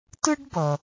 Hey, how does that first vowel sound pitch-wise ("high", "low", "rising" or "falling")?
high